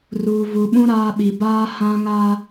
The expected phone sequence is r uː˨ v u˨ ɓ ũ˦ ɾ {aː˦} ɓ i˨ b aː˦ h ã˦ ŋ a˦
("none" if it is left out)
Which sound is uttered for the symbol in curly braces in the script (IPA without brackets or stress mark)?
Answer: aː˦